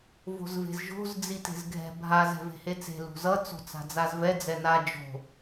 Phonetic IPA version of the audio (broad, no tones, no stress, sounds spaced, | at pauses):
v o̤ z v e̤ z ʒ o̤ z d͡z i t e̤ z ɡʱ ɛ̤ bʱ a z ɛ̤ v e̤ h e t͡s e̤ l ṳ z ʌ t͡s o̤ t͡s a̤ d͡z a z v ɛ d͡z ɛ n a d͡ʒ o̤